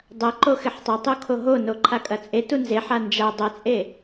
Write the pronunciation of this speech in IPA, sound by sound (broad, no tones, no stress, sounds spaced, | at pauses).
dˤ ɐ ǃ o x ɪ ħ tˤ ɐ tˤ o kʰ o ɦ o n o ǃʰ a kʼ ɐ t͡sʼ e t u n z e ħ a n d͡ʒ a dˤ ɐ t͡sʼ e